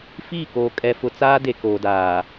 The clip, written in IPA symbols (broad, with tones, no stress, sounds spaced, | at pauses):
f iː˦˨ k oː˨ kʼ ɛ˨ f ʊ˨ t͡s aː˦ d e˨ k oː˨ d aː˨